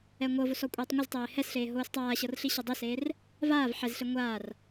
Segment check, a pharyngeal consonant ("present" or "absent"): present